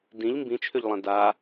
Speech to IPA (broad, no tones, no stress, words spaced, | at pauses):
dĩʎ mbĩt͡ʃʰʏʎlˠɛ̃ da